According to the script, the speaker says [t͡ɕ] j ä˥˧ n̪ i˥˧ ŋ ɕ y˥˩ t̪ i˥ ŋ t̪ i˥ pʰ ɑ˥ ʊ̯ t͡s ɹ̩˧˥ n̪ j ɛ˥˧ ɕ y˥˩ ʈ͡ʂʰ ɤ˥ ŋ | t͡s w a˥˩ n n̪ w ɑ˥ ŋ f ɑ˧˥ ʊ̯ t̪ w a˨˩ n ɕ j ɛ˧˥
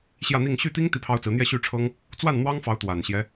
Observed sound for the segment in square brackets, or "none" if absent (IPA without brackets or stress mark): ɕ